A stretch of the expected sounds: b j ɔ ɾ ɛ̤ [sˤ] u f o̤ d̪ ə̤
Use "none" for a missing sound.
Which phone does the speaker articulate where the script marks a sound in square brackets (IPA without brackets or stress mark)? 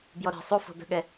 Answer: sˤ